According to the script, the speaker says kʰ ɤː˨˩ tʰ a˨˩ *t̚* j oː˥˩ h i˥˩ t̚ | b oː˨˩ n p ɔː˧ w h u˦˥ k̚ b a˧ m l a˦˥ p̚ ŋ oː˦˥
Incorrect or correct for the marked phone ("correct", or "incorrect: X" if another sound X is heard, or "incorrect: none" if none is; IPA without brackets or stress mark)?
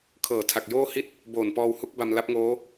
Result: incorrect: k̚